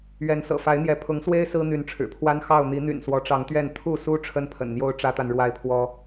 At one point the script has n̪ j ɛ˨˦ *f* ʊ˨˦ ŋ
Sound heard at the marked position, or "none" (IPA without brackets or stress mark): pʰ